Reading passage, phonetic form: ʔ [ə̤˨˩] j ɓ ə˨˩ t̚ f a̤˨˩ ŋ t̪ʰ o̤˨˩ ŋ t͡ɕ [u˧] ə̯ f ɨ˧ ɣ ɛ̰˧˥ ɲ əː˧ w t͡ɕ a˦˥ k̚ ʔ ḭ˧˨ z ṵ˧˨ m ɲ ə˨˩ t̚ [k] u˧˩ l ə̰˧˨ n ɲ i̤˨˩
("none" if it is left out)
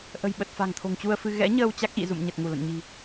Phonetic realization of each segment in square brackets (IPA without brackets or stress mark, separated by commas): ə̤˨˩, u˧, ŋ